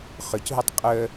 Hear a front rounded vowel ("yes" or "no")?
yes